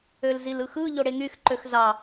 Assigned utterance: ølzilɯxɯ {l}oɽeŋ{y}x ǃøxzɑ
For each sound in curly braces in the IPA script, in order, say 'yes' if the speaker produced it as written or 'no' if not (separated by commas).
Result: no, yes